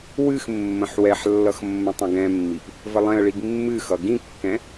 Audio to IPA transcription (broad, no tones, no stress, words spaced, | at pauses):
wɨx mːə̃ħwɛħlːʌx mːə̃tˤə̃ɡɛ̃mːip | vəlˠɛ̃ə̯ɭiɡ mːɨxʌ ɡĩkːɛ̃